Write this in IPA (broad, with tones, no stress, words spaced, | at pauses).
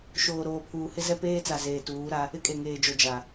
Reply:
ʃoː˨ɾoː˨pʰuː˨ hɪ˦zɛ˦peː˦t͡sa˨ zeː˨tuː˨˦ɾa˦ | ɪ˦kʼe˨ŋeː˨d͡ʒo˨ d͡ʒa˨